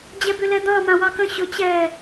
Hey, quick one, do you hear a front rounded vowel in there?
yes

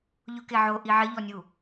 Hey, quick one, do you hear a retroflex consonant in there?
no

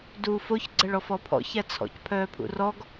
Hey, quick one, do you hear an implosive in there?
no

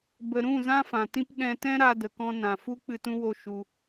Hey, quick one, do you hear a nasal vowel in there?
yes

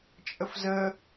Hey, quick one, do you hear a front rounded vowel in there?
no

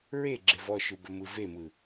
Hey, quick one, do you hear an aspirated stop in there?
no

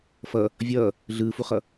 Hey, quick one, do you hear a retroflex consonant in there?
no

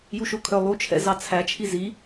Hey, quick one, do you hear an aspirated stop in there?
yes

